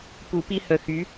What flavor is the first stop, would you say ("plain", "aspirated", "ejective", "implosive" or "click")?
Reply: plain